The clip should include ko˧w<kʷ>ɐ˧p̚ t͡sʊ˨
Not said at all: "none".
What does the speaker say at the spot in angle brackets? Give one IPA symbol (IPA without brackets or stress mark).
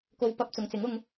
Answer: p